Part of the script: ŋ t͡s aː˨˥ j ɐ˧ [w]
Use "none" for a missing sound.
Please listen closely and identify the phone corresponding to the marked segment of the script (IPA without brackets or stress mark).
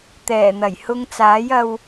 w